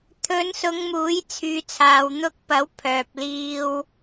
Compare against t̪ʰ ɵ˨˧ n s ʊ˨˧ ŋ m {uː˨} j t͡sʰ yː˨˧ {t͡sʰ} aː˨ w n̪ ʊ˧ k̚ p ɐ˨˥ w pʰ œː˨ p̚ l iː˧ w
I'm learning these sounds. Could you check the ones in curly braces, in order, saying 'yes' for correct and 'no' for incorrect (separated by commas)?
no, yes